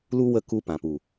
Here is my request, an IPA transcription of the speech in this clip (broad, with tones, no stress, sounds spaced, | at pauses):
l u˦ w ə˦˨ k u˧ p ã˨ p u˨